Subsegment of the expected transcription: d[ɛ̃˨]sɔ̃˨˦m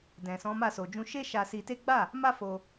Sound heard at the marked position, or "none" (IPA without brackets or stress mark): ɛ̃˨